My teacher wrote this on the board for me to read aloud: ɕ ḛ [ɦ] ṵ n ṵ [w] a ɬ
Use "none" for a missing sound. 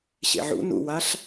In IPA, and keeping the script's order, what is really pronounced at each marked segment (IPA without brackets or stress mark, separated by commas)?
ʕ, w